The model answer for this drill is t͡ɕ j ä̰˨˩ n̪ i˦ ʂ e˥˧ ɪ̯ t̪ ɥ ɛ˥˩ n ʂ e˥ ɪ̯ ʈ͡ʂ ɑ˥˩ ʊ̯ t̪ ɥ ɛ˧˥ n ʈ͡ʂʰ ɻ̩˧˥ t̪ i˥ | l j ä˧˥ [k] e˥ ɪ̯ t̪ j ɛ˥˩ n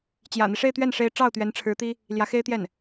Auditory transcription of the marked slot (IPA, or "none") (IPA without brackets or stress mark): x